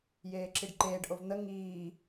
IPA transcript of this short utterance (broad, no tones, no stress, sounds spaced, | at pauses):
j eː ǁ i ɖ ǃ eː ɖ ʔ o v n̪ ə ŋ iː